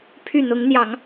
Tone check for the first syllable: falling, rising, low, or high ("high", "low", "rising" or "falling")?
falling